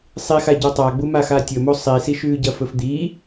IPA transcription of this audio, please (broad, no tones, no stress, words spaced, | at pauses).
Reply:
sˤixa ɟotˤaɡ͡bu maxatʲɵmo sˤisiʃʉːɟɐ fɵfd̪i